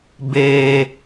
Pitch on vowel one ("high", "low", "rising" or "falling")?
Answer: high